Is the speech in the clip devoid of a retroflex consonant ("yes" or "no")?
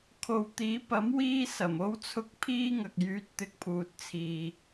yes